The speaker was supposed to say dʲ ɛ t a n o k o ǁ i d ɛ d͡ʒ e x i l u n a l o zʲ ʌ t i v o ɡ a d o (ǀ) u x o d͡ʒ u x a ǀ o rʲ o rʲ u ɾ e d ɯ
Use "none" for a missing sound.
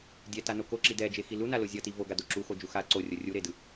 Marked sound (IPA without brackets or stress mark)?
ǁ